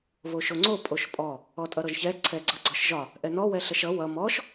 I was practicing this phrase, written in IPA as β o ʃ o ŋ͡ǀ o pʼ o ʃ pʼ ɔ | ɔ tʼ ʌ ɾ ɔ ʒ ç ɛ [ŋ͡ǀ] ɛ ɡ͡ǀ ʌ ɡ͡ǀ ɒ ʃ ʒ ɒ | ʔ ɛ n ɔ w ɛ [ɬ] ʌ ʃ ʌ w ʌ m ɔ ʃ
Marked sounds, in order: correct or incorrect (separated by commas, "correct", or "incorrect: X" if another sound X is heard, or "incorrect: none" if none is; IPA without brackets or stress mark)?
incorrect: ǀʰ, correct